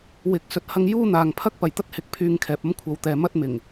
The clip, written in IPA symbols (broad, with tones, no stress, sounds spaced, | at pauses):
w ɪ˧ k̚ s ɵ˧ t̚ h ɐ˥ ŋ j uː˥ n̪ aː˨ ŋ pʰ ɐ˥ k̚ p ɐ˨˩ j t̪ ɐ˥ t̚ h ɪ˨˥ k̚ pʰ yː˧ ŋ kʰ ɛː˨ p̚ ɐ˥ m kʷʰ ɐ˨˧ w t̪ ɛː˨ m ɐ˥ t̚ m ɪ˨˩ ŋ